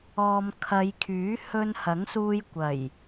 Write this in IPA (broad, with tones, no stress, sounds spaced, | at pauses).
ɔː˨ m kʰ ɐ˨˧ j kʰ yː˨˥ h ɵ˧ n h ɐ˨˥ ŋ s uː˧ j kʷ ɐ˨˩ j